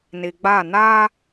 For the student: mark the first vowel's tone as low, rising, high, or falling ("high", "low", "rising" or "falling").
low